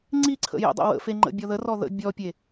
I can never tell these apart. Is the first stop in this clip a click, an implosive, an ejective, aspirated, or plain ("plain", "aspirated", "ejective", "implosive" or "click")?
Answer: click